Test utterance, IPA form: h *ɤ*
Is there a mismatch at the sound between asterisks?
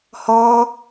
yes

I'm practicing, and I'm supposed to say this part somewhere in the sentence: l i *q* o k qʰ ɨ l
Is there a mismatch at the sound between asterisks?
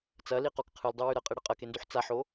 no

